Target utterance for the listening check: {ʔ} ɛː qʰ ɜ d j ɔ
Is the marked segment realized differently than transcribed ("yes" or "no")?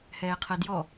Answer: yes